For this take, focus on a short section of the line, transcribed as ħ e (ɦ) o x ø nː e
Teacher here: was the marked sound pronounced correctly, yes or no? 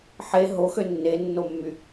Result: yes